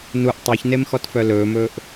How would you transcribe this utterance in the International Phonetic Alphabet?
nuʔ tˤɛçnemxɔtfœ lɵːmɵːʔ

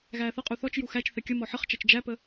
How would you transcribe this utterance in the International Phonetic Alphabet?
ɣæːθʌqʼu θɔt͡ʃju xæt͡ʃ θɛkʲəmɔ ħəχt͡ʃæt͡ʃ d͡ʒæpə

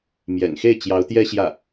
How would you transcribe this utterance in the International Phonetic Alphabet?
mjɛ̰˨˩nxe˥˩ɪ̯ t͡ɕjɑ˧˥ʊ̯t̪jɛ˥ɕjä˥˩

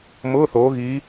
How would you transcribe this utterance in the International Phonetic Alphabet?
mʊː˧˥˧θoː˨˦ɣiː˨˦

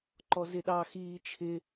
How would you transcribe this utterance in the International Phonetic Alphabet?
ǃɔzɪɗɑ xiːt͡ʃʰɪ

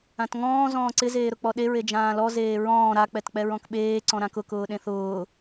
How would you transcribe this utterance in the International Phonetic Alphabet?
ãtŋɔ̃ː zɔ̃ːǀɪ zeːɾʊk͡pɔɗe ɹed͡ʒãːlɔ zeːɹɔ̃ː ɾa k͡pɛtk͡pɛɹɔ̃kɓeː ǀɔ̃ɾãkʊ kʊːɗẽθʊː

